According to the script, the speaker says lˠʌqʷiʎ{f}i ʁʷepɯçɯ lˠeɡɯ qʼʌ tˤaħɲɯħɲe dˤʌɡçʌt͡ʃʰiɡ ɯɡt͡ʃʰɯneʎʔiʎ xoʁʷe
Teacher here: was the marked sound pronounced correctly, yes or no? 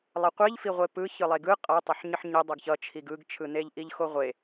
yes